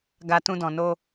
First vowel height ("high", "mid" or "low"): low